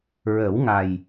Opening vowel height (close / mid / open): mid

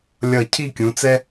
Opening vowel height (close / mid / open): mid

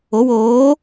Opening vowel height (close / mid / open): mid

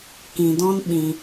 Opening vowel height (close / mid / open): close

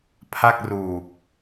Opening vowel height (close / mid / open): open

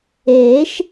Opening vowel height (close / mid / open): mid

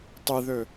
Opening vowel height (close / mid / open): close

